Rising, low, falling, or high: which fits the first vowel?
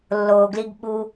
low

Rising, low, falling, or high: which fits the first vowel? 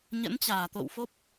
rising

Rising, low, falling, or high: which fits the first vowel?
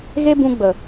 high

